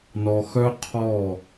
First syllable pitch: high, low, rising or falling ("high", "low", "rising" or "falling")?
low